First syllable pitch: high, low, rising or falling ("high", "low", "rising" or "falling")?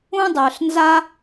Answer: high